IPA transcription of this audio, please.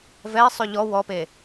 vɛi̯sˤy ʎɔ wɔpe

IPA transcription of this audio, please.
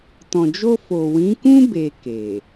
tɔ̃˨d͡ʒo˧fo˨ wĩ˨˦kũ˦ be˧ke˨

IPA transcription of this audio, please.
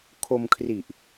kʰo˧mkʰri˨˩ʔ

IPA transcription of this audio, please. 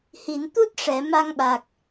hi˨˩˨nt̪u˦˥t̚ ʂɛ˨˩˨ ma˧ŋɓa˨˩k̚

